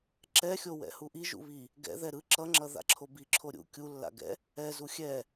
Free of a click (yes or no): no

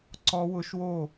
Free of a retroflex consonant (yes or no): yes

